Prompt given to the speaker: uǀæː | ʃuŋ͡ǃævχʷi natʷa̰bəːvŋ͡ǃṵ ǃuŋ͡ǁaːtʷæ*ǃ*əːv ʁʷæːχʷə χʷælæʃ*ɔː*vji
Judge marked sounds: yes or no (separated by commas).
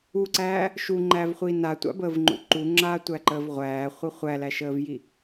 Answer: yes, no